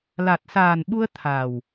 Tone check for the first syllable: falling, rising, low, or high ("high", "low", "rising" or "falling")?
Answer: low